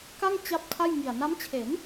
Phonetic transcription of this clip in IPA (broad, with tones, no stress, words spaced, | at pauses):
ka˥˩ŋ t͡ɕa˥˩p̚ tʰa˥˩jŋi˨˩a̯ na˦˥mt͡ɕʰe˩˦n